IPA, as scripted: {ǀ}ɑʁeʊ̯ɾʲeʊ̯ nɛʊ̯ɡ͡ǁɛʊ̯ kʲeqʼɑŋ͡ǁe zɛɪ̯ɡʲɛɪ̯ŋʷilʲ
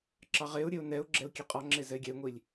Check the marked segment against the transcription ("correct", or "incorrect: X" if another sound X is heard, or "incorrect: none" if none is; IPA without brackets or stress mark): incorrect: ǁ